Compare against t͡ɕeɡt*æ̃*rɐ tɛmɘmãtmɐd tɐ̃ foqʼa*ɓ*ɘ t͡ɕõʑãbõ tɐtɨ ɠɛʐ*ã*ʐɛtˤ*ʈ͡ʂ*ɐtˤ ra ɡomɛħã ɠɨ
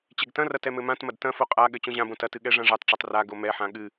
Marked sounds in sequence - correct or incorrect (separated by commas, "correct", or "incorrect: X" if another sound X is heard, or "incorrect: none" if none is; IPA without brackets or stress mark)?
incorrect: ɐ̃, incorrect: ɠ, correct, correct